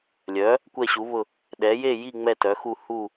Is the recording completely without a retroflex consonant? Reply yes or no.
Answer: yes